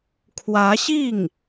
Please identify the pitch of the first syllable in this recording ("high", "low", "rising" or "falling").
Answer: rising